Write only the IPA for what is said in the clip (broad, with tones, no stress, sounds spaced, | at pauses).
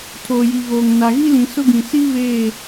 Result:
tʰ oː˨ j i˨ ɣ oː˨ ŋ n a˨ ɣ i˦ l ĩ˨ s ʊ˦ ɡ ĩ˨ s i˦ β eː˦˨